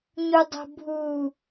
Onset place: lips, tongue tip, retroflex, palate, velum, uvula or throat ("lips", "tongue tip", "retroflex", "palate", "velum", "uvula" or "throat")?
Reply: palate